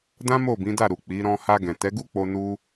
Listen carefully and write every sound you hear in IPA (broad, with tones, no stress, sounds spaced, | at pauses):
d ã˦ m o˦˨ b ĩ˨˦ d a˦˨ ɾ u˨ k͡p i˨˦ ɾ ɔ̃˧ h a˧ ɡ ɛ̃˨ t ɛ˨˦ ɡ u˦ k͡p o˧ n u˦